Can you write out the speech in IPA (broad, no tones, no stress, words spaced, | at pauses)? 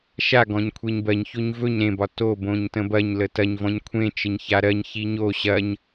ʃa ɡɔ̃ɲkʷʰeɲbɜɲçoɲ vɵɲ ɾẽbɒ tobõɲ tə̃bɐɲlə tɐɲvɔ̃ɲ kʷʰẽt͡ʃəɲ çaɾɜɲçi ɲo ɕɐɲ